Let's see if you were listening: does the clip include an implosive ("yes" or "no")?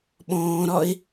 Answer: yes